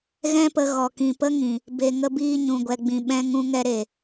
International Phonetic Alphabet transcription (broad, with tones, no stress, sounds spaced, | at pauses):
ɣ ɛ̃˦ p ə˧ ɣ ɔ˨ k ĩ˨ p ə˦ ŋ ĩ˨ | b e˨ ŋ ə˧ b iː˧ ɲ ũ˨ ɡʷ ɛ˨ ɡ͡b ĩ˨ ɓ ɛ̃˧ ŋ ũ˧ ŋ ɛ˧ ɾ e˨